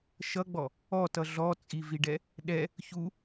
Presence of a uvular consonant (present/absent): absent